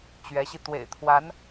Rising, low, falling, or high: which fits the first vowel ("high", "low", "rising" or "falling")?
rising